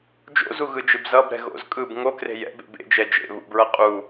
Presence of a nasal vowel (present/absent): absent